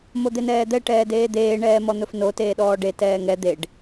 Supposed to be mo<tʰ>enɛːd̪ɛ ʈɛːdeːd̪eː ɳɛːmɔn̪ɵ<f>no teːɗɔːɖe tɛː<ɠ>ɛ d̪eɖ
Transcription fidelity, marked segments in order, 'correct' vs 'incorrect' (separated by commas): incorrect, correct, incorrect